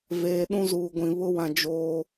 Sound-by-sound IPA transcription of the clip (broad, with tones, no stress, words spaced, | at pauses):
veː˨ ɗũ˦zuː˨ɡʷĩ˨ βʊ˦wã˨ d͡ʒoː˦